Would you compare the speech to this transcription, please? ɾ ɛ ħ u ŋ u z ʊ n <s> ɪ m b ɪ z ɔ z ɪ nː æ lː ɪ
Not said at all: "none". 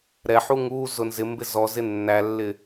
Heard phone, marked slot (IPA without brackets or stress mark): z